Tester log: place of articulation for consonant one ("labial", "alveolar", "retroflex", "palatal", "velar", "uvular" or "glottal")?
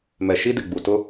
labial